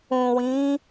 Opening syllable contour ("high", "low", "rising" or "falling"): low